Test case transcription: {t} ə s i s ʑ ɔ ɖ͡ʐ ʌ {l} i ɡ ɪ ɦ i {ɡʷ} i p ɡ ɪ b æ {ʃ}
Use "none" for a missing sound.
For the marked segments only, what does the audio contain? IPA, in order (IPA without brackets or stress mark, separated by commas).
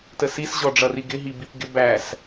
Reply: t, r, b, s